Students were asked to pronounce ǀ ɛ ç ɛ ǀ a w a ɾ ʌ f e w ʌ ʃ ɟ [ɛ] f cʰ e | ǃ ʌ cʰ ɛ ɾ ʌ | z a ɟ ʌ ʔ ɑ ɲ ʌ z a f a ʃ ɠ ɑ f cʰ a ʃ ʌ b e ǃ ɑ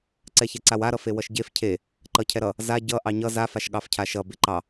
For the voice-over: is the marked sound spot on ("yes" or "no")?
no